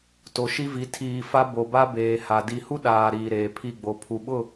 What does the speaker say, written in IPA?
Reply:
to˨ʃi˦vi˨˦ tʰiː˨ fa˦ bo˨ba˦ beː˨ha˨ di˨hu˦ ɗaː˨ ɾiː˨ɾeː˨pʰi˦˨ɡ͡bo˨ pʰu˨ɓʊ˦˨

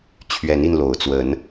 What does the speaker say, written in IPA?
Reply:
t͡ɕʰɥɛ˨˦ni˧nlo˨˩ʊ̯t͡swə˨˦n

